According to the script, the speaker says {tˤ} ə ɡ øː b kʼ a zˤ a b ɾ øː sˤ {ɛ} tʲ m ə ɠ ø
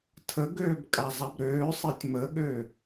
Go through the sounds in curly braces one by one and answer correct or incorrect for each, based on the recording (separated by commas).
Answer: incorrect, incorrect